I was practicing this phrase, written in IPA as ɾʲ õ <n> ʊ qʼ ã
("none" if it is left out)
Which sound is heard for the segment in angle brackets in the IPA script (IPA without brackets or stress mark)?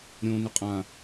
n